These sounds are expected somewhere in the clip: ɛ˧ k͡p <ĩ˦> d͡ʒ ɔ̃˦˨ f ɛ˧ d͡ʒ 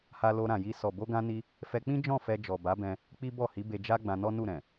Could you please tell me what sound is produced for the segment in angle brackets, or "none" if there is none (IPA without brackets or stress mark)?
ĩ˦